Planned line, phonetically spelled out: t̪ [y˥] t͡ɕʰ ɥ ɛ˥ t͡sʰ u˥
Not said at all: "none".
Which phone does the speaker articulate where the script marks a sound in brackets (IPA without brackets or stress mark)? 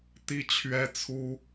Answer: i˥